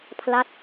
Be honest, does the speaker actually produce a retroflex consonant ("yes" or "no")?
no